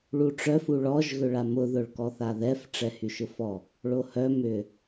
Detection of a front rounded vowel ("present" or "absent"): present